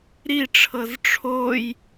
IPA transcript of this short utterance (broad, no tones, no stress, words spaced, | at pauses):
ɾiʈ͡ʂʰɤz ʈ͡ʂʰoj